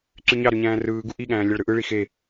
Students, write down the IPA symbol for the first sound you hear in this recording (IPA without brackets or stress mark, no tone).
ǀ